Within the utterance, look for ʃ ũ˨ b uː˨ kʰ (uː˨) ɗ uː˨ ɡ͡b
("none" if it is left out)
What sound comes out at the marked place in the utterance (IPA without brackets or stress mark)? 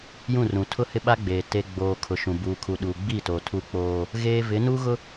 u˨